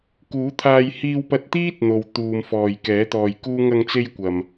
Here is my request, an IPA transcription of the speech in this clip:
k uː˨˥ t̪ʰ aː˧ j h iː˧ w p ɐ˧ t̚ t̪ iː˥ t̚ n̪ o˨ w t̪ uː˨ m f ɔː˨ j k ɛː˨˥ t̪ ɔː˨ j k uː˥ ŋ ɐ˧ ŋ t͡s e˧ j kʷ ɐ˨ m

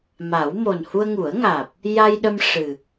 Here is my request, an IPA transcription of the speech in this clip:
m a˨˩˦ w m o˨˩ n h u˧ ə̯ ŋ u˨˩˦ ə̯ ŋ aː˨˩ p̚ | j a˧ j ɗ ə˧ m ʂ ɨ˨˩

